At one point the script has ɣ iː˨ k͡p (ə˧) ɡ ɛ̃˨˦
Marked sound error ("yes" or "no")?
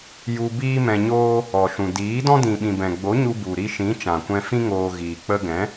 no